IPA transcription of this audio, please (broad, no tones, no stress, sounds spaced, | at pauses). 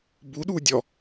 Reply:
b u ɗ u dʲ ɔ